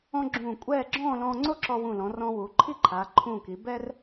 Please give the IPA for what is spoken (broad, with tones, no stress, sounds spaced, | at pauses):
ɔ̃˥ ɡ͡ǁ ũː˧˩ kʷʼ ɛː˥˧ ɡ͡ǁ ɔ̃ː˥˧ l ɔ̃ː˧ ŋ͡ǀ o˥ ǁ ɔ˧ w ũ˧˩ l ɔ̃˩˧ r ɔ̃ː˧ w uː˩˧ ǃʰ i˥ ǃʰ aː˩˧ ǃʰ ũː˧˩ k i˩˧ b ɛ˥ r